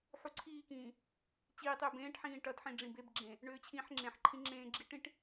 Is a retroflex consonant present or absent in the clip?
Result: present